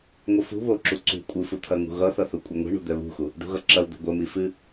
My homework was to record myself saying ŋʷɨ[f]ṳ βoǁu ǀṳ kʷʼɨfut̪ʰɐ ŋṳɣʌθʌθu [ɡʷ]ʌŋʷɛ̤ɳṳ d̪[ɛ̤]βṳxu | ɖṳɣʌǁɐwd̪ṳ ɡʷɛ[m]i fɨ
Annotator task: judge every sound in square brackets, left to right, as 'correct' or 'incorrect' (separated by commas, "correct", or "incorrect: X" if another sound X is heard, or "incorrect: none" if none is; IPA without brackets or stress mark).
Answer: correct, incorrect: kʷʼ, incorrect: ɛ, correct